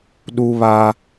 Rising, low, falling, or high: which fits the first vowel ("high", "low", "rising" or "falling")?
high